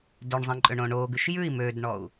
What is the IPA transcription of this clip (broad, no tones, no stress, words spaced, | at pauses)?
døɳzˤĩǃʼøɳõ ɳoɡʉʃ jʉi̯ mødɳɔu̯